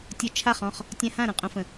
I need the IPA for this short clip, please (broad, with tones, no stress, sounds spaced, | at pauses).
tʲ o˥˨ t͡ʃʰ a˥˨ χ ɔ̃˥˨ χ | tʲ ã˦ h ã˥˨ ɾ ə̃˨˩ qʼ õ˦ f ə̃˨˩